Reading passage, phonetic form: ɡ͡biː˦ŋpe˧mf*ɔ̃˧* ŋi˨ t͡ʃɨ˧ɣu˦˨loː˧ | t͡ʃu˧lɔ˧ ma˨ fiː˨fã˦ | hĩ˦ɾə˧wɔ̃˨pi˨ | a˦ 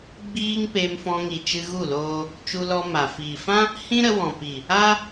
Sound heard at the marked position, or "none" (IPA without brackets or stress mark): ɔ̃˧